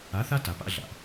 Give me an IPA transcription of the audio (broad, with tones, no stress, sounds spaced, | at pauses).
a˨˦ θ a˦ t a˨ p a̰˦ ɮ a̰˨